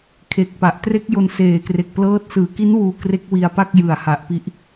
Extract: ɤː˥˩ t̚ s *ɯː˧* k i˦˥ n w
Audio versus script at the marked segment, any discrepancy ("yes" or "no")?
yes